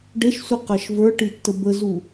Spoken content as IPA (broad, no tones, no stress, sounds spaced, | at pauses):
ɖ e ʃ sʷ i q ɜ ʃ v ə˞ ʈ i tː ə b ə z u